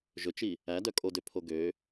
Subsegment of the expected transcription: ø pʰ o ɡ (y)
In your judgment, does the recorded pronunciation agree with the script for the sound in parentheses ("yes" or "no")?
no